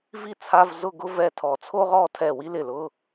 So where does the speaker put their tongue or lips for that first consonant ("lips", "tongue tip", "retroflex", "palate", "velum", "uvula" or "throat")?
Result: lips